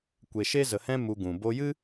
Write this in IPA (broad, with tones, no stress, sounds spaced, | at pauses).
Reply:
kʷ e˨ ʃ e˦ z ə˨ h ɛ̃˦ m u˧ ɡ ũ˨ b o˧ j ɨ˦